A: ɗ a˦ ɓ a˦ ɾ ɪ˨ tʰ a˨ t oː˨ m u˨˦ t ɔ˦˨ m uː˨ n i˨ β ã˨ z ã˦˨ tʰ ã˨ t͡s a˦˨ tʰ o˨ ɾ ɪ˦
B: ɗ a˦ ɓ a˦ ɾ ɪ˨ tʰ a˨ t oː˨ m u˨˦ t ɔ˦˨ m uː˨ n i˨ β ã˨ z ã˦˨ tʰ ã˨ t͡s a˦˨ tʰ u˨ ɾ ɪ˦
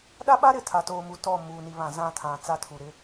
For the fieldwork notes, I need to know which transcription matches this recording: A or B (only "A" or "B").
B